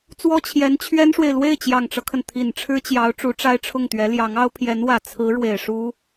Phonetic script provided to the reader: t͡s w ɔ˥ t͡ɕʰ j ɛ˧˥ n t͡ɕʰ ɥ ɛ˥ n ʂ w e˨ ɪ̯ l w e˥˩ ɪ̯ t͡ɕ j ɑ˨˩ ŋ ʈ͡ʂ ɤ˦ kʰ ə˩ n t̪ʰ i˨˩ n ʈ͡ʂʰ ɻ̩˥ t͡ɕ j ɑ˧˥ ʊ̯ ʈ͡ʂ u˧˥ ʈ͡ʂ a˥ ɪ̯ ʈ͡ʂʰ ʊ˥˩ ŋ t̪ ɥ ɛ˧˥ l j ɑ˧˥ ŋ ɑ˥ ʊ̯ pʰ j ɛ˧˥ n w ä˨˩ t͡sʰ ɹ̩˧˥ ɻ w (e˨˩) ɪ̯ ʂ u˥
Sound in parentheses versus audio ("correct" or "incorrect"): correct